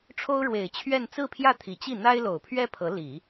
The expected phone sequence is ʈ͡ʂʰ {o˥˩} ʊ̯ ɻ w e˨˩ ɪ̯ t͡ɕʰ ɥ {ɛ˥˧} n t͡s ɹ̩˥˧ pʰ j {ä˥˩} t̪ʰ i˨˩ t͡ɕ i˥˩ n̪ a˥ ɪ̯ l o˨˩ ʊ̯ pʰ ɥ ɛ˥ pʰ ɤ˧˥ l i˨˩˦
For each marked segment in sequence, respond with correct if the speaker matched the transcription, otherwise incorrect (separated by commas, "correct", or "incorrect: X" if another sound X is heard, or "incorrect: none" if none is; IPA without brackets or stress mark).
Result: incorrect: o˥, correct, correct